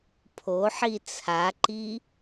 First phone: pʰ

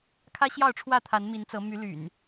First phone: kʰ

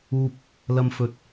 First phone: uː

